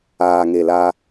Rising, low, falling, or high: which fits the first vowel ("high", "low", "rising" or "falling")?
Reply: low